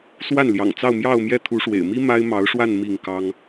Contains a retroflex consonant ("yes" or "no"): yes